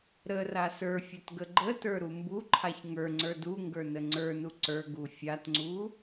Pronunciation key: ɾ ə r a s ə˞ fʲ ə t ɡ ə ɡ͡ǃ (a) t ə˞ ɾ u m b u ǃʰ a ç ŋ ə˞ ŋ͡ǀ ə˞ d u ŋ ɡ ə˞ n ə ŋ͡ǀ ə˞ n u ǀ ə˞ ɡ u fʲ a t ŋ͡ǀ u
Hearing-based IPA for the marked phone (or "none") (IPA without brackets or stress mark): ə